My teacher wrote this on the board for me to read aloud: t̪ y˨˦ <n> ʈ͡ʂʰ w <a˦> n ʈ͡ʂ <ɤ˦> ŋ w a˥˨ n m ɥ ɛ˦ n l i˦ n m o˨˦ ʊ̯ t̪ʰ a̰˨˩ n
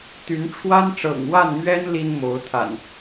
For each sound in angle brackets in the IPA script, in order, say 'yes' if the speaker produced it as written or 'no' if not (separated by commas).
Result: yes, yes, no